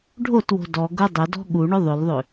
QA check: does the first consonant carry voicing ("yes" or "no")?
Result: yes